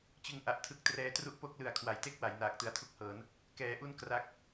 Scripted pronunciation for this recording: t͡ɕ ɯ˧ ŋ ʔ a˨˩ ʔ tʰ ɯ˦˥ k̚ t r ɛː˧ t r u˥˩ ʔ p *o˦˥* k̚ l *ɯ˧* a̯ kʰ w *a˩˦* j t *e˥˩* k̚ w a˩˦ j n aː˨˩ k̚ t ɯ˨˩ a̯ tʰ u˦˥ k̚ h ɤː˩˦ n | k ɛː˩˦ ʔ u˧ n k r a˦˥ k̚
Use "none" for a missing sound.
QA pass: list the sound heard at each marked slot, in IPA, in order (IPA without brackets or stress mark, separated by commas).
o˦˥, ɯ˨˩, a˩˦, e˥˩